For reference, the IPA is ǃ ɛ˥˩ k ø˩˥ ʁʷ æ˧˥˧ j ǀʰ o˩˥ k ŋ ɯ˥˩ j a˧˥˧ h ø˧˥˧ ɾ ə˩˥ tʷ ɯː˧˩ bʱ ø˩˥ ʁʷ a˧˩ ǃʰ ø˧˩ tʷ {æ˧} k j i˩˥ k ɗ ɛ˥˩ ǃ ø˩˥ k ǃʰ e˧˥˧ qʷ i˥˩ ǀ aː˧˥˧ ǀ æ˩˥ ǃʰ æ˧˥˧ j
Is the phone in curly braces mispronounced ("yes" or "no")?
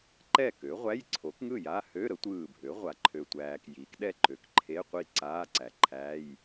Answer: yes